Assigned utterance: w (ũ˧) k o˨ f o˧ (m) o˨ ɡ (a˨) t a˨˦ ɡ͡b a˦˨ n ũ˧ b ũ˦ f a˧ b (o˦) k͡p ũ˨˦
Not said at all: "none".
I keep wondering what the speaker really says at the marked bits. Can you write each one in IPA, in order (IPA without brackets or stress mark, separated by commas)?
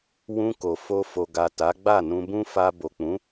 ũ˧, f, a˨, o˨